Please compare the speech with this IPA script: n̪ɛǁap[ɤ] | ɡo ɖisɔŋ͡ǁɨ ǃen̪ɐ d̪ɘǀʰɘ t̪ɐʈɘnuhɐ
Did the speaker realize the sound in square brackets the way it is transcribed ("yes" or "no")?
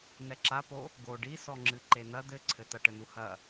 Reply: no